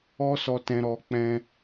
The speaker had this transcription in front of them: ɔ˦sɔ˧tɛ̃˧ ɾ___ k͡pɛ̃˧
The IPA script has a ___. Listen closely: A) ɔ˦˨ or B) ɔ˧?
B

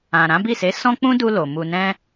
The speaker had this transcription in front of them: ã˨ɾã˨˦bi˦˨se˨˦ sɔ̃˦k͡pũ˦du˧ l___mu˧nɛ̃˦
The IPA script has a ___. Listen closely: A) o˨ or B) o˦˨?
A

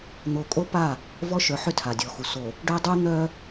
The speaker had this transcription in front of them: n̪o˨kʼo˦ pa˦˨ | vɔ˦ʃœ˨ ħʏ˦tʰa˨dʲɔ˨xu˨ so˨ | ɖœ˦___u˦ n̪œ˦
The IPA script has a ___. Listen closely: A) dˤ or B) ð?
A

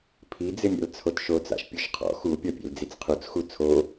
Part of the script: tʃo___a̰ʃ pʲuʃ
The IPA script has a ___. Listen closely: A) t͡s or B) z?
A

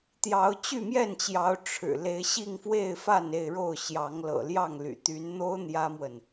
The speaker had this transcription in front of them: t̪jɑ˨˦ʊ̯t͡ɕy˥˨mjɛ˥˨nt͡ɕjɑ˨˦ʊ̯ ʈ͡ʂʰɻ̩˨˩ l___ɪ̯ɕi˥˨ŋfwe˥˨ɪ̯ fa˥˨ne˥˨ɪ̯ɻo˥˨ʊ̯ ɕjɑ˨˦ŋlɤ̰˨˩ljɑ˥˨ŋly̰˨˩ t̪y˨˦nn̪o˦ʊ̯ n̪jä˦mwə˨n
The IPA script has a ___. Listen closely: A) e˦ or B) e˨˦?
B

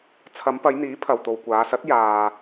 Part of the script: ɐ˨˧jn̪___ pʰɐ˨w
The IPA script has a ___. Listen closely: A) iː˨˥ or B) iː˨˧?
A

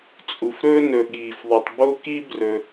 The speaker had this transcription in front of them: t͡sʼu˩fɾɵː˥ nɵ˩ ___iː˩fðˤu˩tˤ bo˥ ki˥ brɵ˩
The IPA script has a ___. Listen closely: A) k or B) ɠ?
B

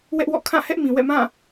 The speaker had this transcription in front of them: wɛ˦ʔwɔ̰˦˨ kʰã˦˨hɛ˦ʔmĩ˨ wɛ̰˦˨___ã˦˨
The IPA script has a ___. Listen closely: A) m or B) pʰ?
A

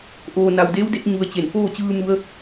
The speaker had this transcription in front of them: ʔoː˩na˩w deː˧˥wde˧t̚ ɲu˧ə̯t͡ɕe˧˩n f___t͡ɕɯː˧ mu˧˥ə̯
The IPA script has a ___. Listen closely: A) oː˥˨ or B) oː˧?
A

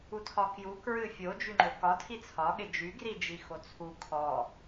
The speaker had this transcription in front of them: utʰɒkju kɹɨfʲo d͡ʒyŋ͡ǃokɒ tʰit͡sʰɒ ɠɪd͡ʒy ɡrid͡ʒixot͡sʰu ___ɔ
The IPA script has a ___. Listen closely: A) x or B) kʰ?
B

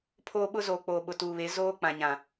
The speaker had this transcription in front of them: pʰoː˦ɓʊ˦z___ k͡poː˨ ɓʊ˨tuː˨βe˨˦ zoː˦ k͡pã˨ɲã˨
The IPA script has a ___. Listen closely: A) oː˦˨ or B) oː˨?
B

